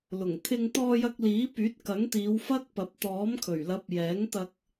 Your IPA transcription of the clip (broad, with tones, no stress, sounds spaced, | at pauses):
l ʊ˨˩ ŋ t̪ʰ ɪ˧ ŋ t̪ ɔː˧ j ɐ˧ k̚ l iː˨˥ p yː˨˥ t̚ k ɐ˨˥ ŋ t̪ iː˨˧ w f ɐ˥ k̚ p ɐ˨˥ p̚ t̪ ɔː˨˥ m kʰ ɵ˨˩ ɥ l ɐ˨˥ p̚ j ɛː˨˥ ŋ t̪ ɐ˧ k̚